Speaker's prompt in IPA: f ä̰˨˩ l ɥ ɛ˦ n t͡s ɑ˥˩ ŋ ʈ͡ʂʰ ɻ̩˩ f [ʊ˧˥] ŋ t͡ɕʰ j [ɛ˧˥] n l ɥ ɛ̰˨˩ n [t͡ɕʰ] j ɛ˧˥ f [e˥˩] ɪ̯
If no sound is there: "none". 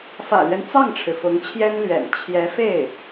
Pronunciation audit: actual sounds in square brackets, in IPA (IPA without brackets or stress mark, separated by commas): ʊ˧˥, ɛ˥, t͡ɕʰ, e˥˩